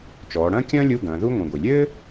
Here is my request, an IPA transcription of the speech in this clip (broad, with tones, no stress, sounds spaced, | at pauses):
t͡ʃ ɔː˩˧ ɽ ɐ̃ː˥ kʲ ɐ̃ː˥ lʲ u˧˥˧ ɡ ɐ̃ː˩˧ ð u˥ ŋʷ ĩ˩ ɡʷ i˩ lʲ ɘː˥